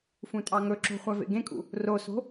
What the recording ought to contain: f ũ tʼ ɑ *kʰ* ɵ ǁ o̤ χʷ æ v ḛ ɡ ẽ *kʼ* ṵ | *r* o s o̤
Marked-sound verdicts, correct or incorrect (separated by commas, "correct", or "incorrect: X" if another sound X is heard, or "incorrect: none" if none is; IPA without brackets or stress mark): incorrect: ŋ, correct, correct